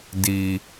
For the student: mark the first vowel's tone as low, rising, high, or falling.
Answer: low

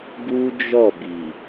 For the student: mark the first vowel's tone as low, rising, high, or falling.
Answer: high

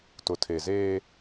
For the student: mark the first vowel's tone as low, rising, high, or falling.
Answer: low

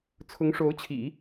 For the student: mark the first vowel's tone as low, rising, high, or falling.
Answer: rising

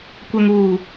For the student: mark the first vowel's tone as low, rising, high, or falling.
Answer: low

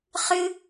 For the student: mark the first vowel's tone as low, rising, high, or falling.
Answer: high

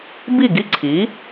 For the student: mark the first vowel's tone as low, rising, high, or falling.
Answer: falling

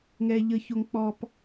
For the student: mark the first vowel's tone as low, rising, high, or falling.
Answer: high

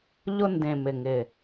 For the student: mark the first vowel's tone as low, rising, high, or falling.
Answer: high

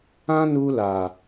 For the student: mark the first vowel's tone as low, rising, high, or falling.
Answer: high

